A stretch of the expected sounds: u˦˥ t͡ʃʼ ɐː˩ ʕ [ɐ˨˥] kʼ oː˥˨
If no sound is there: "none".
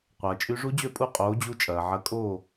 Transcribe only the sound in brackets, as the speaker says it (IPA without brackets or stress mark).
ɐ˨˥